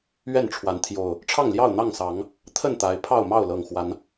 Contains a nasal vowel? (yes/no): no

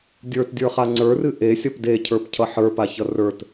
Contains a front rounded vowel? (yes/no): no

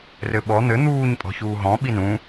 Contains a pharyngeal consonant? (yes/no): no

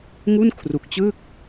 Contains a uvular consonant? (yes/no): no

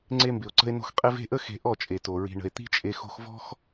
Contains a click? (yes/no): yes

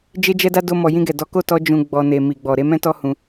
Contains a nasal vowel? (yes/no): yes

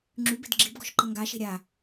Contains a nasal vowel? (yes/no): no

